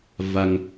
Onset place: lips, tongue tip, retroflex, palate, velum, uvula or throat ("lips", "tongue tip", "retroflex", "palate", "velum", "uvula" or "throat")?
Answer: lips